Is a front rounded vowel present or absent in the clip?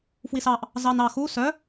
present